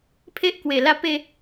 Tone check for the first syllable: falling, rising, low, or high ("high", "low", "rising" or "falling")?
high